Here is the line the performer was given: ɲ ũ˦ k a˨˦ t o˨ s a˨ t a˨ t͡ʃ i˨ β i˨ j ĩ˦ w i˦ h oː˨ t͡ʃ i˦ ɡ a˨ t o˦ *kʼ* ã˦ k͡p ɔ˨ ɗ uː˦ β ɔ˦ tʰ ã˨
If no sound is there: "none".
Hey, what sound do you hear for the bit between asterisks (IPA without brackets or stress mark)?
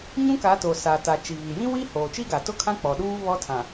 kʰ